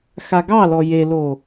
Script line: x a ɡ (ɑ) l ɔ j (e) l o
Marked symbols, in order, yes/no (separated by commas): yes, yes